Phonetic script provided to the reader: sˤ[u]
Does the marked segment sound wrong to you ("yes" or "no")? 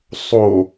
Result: yes